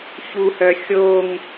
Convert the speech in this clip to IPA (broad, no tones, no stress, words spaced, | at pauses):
çuhœ xʲoŋ